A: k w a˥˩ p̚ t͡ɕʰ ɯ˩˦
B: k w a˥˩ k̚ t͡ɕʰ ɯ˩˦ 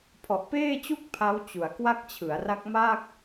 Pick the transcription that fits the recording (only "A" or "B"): B